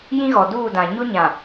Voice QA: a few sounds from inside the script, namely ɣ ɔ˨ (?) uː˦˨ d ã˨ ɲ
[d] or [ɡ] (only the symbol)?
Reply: d